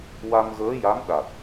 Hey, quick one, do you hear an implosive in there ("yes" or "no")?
yes